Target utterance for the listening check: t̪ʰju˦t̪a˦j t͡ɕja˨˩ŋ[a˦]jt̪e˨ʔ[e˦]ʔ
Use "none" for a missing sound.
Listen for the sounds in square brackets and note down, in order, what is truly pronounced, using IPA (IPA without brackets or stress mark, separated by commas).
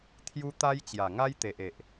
a˦, e˨